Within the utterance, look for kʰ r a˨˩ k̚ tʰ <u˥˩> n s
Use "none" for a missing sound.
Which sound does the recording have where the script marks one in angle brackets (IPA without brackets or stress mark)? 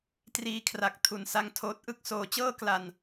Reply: u˨˩